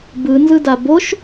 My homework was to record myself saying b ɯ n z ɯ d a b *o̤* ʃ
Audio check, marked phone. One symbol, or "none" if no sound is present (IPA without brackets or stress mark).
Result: o